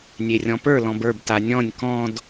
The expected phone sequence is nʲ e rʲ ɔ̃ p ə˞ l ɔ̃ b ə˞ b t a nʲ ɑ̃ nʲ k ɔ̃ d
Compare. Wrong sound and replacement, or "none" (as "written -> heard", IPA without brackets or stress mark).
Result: ɑ̃ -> ɔ̃